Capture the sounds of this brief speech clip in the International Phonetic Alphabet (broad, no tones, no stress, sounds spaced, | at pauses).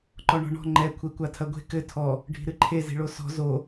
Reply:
ǃ ɔ ɳ ɔ̤ ɳ ɔ̤ ŋ͡ǃ ɛ kʷʰ e kʷ a tʰ ɐ ɡʷ e̤ k ɘ tʰ ɔ | ɖʱ i̤ ɾ ɨ ǃʰ e z i̤ ɭ o s ɔ̤ z o